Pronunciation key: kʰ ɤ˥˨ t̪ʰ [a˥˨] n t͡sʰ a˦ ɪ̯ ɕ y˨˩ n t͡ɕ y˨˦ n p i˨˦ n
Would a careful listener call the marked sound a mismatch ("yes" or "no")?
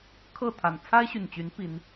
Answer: yes